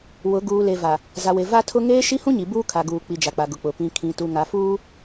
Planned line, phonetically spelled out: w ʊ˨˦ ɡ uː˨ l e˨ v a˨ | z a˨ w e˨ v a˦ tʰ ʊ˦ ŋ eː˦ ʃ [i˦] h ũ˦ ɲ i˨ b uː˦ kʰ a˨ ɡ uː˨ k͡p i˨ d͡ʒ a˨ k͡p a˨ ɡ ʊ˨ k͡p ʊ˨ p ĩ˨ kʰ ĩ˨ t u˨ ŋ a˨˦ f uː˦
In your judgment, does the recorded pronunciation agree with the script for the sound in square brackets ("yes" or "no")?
yes